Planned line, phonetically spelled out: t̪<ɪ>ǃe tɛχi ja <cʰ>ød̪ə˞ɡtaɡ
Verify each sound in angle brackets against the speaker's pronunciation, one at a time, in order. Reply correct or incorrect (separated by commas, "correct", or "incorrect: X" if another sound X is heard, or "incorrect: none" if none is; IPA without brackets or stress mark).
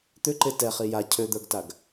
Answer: incorrect: ʏ, correct